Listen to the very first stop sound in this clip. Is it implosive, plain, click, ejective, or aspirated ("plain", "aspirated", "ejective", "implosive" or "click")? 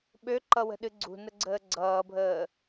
implosive